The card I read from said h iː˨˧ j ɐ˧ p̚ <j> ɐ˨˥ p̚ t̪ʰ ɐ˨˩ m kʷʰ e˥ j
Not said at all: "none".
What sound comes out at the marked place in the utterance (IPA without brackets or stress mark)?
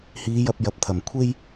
j